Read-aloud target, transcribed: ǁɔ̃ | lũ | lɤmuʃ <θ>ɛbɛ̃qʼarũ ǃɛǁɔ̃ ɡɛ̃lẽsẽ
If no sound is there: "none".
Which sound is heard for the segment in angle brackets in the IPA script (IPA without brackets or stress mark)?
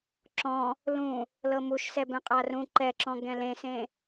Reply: s